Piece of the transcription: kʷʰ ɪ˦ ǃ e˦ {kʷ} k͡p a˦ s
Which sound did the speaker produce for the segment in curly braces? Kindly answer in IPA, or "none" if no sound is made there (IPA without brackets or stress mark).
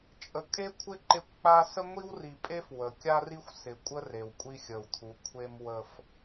kʷ